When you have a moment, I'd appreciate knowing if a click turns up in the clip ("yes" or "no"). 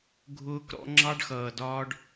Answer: yes